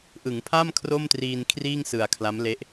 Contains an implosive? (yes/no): no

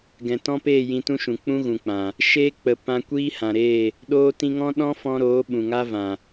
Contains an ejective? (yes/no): no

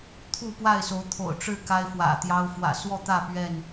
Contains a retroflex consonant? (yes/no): yes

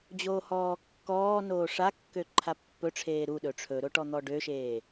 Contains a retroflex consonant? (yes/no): yes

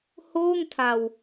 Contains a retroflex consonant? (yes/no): no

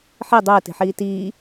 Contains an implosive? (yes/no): no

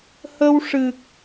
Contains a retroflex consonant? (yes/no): yes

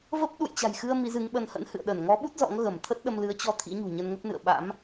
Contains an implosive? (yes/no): yes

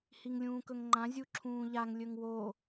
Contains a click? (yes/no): yes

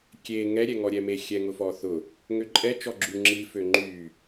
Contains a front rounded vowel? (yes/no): yes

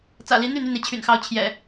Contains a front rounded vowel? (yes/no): yes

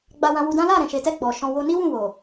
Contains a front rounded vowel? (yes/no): no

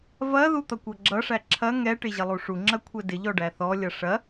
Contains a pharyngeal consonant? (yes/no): no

